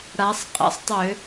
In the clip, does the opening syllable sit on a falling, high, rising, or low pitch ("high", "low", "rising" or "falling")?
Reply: rising